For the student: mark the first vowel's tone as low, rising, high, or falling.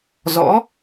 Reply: rising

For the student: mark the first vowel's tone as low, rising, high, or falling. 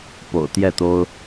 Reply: low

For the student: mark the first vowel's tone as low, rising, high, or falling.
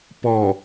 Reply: low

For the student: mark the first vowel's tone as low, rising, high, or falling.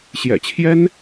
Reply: low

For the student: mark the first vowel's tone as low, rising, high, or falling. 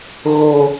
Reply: high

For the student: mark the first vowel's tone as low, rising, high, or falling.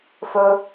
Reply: low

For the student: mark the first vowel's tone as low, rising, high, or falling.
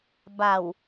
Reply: low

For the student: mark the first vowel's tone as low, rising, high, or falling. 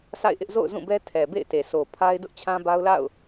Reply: falling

